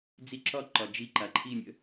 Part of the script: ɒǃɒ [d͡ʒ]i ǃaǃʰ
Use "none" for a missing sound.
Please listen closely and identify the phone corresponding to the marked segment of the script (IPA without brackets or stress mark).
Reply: d͡ʒ